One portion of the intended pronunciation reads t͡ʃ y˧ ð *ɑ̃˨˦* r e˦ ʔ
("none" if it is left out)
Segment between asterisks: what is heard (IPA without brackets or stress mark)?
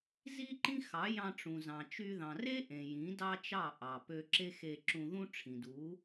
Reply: ɑ̃˨